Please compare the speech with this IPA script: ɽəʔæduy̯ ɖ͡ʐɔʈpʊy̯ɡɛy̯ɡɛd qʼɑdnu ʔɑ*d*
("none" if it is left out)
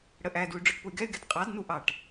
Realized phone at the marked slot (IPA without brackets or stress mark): ʈ